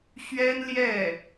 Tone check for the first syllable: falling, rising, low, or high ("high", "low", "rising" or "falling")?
high